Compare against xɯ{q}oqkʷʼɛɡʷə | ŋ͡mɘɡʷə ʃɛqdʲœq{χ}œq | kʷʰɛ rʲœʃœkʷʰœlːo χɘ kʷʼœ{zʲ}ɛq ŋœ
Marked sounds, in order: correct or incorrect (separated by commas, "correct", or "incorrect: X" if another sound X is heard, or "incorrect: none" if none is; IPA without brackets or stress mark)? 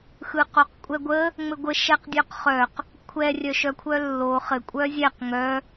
correct, correct, correct